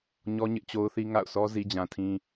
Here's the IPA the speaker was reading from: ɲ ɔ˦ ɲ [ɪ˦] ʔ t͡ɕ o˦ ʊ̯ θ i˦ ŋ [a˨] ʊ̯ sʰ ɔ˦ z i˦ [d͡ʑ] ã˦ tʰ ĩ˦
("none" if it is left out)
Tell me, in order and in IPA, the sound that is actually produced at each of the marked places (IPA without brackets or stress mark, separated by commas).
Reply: ɪ˦, a̰˦˨, d͡ʑ